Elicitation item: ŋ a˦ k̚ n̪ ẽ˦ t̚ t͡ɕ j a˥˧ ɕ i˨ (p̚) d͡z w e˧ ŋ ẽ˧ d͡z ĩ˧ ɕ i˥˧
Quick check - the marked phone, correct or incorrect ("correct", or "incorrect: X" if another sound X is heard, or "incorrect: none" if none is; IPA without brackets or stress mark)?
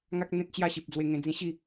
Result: correct